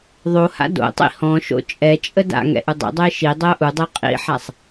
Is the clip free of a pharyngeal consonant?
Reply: no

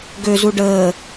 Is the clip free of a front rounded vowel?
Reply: no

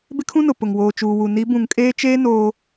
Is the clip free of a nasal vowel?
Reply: no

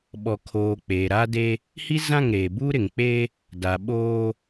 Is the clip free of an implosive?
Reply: no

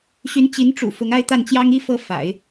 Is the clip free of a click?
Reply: yes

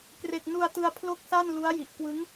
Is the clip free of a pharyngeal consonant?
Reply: yes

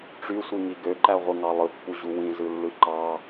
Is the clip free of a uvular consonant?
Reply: no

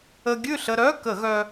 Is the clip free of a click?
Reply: yes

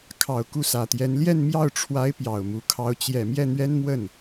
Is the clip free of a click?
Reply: yes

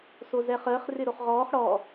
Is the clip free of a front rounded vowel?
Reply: yes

